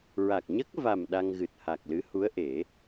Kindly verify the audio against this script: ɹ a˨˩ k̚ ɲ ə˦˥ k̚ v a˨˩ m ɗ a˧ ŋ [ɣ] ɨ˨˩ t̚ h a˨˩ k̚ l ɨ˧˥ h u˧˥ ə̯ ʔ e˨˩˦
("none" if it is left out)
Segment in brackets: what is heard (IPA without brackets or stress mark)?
ɣ